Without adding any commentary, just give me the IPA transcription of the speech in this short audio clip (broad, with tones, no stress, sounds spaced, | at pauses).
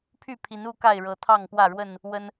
pʰ y˥˨ pʰ i˨˦ n u˦ k a˥˨ ɪ̯ ɻ ɤ˨˦ t̪ʰ ɑ˥˨ ŋ p w ä˥˨ ɻ w ə˥˨ n | w ə˦ n